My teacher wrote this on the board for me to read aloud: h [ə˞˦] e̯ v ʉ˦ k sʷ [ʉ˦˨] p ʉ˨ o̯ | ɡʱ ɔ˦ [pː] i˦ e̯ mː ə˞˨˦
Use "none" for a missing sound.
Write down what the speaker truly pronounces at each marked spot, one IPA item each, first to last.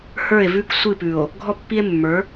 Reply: ə˞˦˨, ɨ˦˨, pː

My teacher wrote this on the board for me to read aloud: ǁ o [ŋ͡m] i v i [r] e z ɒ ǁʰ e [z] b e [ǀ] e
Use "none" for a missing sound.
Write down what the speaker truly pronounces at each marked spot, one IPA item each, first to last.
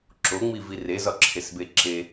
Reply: ŋ͡m, r, s, ǁ

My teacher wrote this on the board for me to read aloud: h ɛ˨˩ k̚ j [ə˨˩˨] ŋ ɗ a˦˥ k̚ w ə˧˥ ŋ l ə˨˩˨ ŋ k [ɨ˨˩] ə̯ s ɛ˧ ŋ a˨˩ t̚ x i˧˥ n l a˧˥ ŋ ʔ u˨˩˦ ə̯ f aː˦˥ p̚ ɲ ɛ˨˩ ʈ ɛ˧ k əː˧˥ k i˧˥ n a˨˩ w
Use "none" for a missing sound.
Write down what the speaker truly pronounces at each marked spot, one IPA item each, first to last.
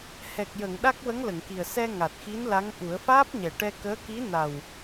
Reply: ə˨˩˨, i˨˩

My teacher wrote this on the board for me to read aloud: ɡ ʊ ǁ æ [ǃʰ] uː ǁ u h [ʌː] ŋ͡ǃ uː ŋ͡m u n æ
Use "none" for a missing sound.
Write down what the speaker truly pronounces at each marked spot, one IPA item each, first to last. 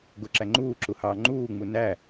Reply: ŋ͡ǃ, ɑː

